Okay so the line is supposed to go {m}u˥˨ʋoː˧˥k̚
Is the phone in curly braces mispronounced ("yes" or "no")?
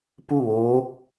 yes